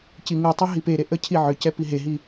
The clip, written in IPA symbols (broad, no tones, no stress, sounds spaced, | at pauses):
c i ŋ u tˤ o ɦ i p e ɾ e ʔ ə cʰ i ʕ ʏ c ɛ p i ɦ e ɦ i